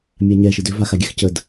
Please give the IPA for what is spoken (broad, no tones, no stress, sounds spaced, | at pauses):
mʲ a ɲ ɛ ʃ ɯ d ʏ v a x a ɡʲ ɛ x c ə d